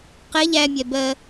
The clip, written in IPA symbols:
q ɛ ʎ æ mʲ ɛ b ɜ

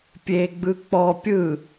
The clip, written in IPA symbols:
pʲ e ɡ͡b ɯ k͡p ɔ pʲ ɯ

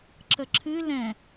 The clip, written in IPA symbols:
ǁ ə ǁʰ ɨ l ɛ̃

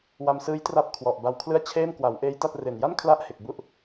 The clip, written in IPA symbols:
w a˧ m s ɯː˦˥ j t r a˦˥ p̚ kʰ w ɔ˨˩ ʔ b a˧ w kʰ l ɯ˥˩ a̯ t͡ɕʰ eː˥˩ m k w a˩˦ w ʔ eː˦˥ j t a˥˩ t̚ r e˨˩ n j a˥˩ n kʰ l a˦˥ ʔ h e˨˩ k̚ b u˦˥ ʔ

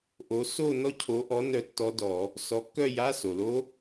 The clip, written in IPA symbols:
ʔ o˨˦ s o˥˧ n ɔ˦˥ cʰ o˨˦ ʔ ɔ˨˦ n œ˥˧ tː ɔ˦˥ d ɔ˧˩˧ | s ɔ˨˦ kː œ˥˧ j a˧˥˧ s o˩ l o˦˥

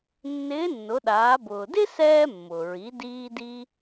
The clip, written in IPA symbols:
nː ɪː˧˥ nː ʊ˩˧ ɗ aː˩˧ b ʊː˩ d ɪ˥ s ɛː˧ mː ʊ˩ ɹ i˩˧ d iː˧ d i˧

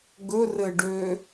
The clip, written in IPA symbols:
ɡ ɵ r ɘ ɖ ø

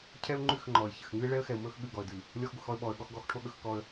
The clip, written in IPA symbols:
cʰ ɛ˦ ʊ̯ ŋ͡ǃ ʉ˦˨ x ŋ͡ǃ ɔ˨ ɪ̯ ç ɘ˨ x ŋ ʉ˦ ɪ̯ ɭ ɛ˦ ə̯ x ɛ˨ ʊ̯ m ɵ˦ x ɠ ʉ˦˨ ɡ ɔ˨ ə̯ d ʉ˨ | lʲ ɔ˦ x ɡʷ ɘ˨ x ɔ˦ ə̯ ɓ ɔ˨ ə̯ ɠ ɔ˦ x ɡ ɔ˦ x ʈʰ o˦ ɠ ɵ˦ x k ɔ˦ ə̯

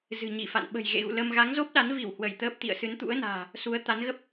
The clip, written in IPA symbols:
z ɨ̤˨˩ ɲ i˧˩ f a̰˧˨ n ɓ ə̤˨˩ j ɣ ḛ˧˨ ɣ ṵ˧˨ l ə˧ m ɣ a˨˦ ŋ z o˦˥ p̚ ɗ a˨˦ n v i˧˩ w h w ə˧˩ j t̪ əː˦˥ p̚ t̪ ḭ˧˨ ə̯ s ɨ˨˦ n t̪ ṵ˧˥ ə̯ n a̤ː˨˩ | s u˨˦ ə̯ t̪ a˨˦ n ɣ ə˦˥ p̚

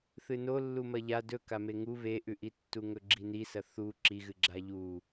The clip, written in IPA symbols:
θ ɨ n o lː u m ɐ ʎ a d ɵ k a m e ŋ u β e ʔ ʉ ʔ i tː u ŋ ɵ ɡ͡ǁ i n i s ɐ θ u ǁ i ɣ ɨ ɡ͡ǁ a ʎ u

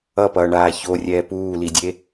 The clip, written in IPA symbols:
ʌ p ʌː ɳ aː ç o rʲ ɛː p uː l i dʲ e

